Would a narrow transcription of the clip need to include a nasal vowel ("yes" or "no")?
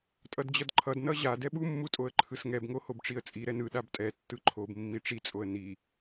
no